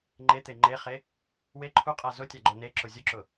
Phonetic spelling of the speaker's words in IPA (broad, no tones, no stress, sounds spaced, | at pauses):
ŋ͡ǃ e t̪ e ŋ͡ǃ e χ e | w e ǃʰ u qʼ a z ʊ tʲ a ɡ͡ǃ o n e ǁ ʊ zʲ ʊ ǁ ʊ